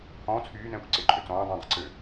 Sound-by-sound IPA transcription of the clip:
h ɔ̃ː t͡sʰ yː n ɛ̃ː kʷ ǀ e ǃʼ ø t͡s ɔ̃ː dˤ ĩ dˤ e̤ ǀ ø

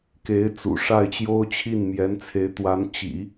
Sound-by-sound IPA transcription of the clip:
k e˧˥ ɪ̯ t͡s ṵ˨˩ ʂ a˥˩ ɪ̯ t͡ɕ j o˥ ʊ̯ t͡ɕʰ i˥˩ n m j ɛ˧˥ n t͡sʰ e˧˥ ɪ̯ t̪ w a˧˥ n t͡ɕ ḭ˨˩˦

